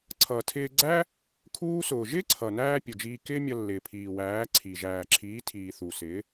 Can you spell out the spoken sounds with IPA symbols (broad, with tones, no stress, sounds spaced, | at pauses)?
ǀʰ ʌː˨ tʰ ɪː˧ ɡ͡ǀ æ˦ | kʰ uː˦ s ʊː˨ ʒ ɪː˦ ǀʰ ʌ˨ n æː˧ pʲ ʊ˨ d͡ʒ iː˧ k ɪː˦ mʲ ʌ˧ lː ɪː˨ pʰ iː˨ w æː˨˦ ǀʰ i˨ ʒ æː˨ ǁʰ iː˨˦ tʰ iː˨ θ u˨ s ɪ˨˦